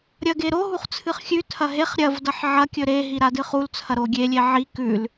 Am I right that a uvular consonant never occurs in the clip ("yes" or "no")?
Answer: no